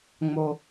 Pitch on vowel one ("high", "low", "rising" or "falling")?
low